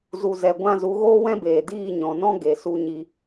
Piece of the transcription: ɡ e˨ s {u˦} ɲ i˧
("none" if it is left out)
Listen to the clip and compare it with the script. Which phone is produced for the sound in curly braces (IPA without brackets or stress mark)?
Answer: u˧